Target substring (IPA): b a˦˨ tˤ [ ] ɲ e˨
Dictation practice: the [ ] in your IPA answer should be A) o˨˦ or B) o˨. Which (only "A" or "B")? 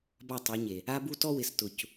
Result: A